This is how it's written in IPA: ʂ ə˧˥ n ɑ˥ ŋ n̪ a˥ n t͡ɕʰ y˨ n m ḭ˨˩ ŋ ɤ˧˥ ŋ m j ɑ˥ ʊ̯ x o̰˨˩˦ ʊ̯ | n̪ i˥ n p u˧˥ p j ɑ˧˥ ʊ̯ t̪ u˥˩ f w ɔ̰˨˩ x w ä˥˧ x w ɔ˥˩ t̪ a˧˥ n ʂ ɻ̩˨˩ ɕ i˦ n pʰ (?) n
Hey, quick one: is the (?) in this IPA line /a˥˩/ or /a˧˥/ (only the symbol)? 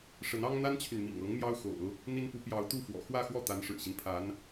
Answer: a˧˥